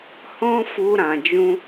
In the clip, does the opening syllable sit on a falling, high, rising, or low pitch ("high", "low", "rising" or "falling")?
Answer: high